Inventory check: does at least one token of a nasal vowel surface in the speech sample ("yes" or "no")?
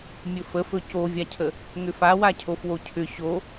no